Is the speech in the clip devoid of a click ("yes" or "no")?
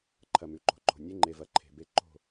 no